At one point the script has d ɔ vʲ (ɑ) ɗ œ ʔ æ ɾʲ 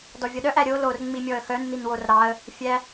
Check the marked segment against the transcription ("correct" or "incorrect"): incorrect